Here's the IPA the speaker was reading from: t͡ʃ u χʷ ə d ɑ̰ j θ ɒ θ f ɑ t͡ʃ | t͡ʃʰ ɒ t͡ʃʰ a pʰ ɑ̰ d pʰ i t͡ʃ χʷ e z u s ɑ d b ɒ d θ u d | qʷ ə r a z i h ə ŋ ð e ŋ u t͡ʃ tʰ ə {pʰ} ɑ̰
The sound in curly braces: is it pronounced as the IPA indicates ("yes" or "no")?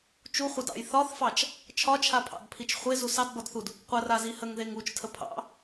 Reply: yes